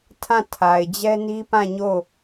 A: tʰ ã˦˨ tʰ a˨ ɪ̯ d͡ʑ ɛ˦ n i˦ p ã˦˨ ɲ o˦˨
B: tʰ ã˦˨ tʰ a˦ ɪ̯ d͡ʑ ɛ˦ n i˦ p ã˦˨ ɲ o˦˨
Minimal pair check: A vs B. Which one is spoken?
A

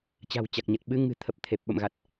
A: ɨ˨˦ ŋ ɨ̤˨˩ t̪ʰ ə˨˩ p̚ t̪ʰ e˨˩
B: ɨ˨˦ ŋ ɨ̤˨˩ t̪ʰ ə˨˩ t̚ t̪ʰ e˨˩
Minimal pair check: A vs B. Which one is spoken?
A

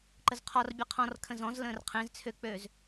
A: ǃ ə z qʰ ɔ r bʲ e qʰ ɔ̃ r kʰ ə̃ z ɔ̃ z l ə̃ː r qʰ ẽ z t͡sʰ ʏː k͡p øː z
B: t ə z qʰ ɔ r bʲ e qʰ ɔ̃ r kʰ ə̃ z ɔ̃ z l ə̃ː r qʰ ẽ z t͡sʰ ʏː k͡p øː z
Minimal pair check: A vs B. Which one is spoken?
A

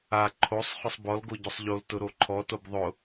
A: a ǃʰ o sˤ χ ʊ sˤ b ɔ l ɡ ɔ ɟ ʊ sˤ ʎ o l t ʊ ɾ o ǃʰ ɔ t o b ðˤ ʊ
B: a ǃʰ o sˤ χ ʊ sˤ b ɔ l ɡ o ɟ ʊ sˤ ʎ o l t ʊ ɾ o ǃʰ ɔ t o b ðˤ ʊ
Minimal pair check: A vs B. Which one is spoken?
B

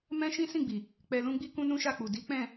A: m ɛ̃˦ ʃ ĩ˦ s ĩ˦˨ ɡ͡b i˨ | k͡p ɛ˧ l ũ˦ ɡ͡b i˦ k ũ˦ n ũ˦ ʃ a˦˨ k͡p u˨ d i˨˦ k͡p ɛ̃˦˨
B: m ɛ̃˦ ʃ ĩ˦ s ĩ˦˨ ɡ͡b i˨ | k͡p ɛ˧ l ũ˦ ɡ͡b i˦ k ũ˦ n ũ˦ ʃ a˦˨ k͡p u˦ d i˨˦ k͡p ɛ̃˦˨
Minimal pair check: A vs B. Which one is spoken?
A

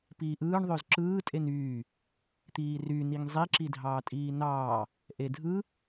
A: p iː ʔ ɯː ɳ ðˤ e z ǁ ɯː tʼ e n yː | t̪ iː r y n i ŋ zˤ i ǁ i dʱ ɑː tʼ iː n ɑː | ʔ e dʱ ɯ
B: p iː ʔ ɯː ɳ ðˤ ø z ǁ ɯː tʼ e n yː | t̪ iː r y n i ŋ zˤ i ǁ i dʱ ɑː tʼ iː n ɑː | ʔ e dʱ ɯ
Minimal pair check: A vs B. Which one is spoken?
B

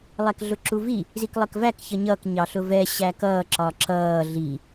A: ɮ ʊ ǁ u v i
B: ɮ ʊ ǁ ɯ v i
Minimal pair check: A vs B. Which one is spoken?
A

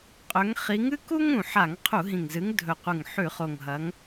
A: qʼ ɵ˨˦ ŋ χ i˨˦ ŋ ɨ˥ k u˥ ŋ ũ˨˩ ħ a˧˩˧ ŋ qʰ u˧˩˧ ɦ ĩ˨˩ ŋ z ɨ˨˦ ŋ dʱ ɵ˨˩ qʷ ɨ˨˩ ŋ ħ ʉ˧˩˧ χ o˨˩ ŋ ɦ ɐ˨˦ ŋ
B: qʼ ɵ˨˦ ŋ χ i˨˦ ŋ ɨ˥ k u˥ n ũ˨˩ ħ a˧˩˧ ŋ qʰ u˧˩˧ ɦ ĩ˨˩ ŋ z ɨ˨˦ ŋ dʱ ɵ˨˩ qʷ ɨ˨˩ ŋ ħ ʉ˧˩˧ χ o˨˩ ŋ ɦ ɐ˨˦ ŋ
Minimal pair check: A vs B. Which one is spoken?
A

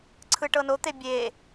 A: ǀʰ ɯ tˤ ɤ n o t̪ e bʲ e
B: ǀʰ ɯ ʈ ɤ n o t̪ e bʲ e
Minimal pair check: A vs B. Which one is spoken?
B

